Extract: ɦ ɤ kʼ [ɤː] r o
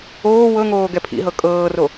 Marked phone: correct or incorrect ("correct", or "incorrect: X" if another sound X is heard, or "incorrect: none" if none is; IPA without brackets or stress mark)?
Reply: correct